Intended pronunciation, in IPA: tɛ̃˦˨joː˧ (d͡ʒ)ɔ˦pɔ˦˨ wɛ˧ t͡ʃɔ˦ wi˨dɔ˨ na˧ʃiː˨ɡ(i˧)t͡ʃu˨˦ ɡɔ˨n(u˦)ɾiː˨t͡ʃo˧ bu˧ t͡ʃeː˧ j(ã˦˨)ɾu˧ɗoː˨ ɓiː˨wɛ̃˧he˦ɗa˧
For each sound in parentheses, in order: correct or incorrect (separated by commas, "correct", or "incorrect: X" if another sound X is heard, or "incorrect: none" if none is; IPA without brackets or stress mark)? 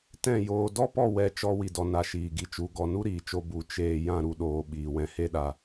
incorrect: d, incorrect: i˨, correct, correct